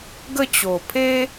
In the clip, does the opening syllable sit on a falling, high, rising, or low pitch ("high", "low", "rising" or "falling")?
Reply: falling